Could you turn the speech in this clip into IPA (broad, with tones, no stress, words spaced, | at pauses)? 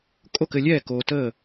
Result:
kʼo˥˨kɘ˧lʲɛː˥˨ koː˧təː˥˨